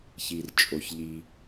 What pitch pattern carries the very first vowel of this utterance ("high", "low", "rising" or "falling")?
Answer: low